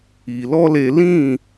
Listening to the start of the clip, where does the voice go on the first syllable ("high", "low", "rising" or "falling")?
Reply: low